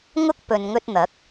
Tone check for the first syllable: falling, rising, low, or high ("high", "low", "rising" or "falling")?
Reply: high